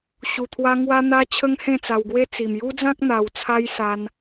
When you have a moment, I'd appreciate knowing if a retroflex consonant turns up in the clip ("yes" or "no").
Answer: no